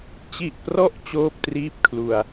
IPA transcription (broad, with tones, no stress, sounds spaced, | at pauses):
t͡ɕ i˨˩ ʔ p r ɔ˦˥ ʔ t͡ɕ oː˥˩ p̚ t r iː˥˩ p̚ kʰ l u˧ a̯